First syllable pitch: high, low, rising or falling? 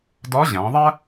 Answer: rising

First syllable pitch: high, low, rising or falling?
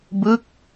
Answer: falling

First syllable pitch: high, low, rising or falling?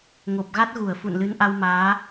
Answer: low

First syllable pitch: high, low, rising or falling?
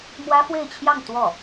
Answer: high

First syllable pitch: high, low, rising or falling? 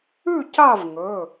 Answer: falling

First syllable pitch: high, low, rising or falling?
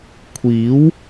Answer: rising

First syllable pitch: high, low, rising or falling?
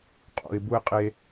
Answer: low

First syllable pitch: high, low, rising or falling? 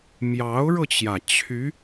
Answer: rising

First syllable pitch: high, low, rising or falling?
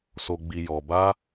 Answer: low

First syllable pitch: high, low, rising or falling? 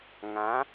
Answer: rising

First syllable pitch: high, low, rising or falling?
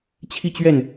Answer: falling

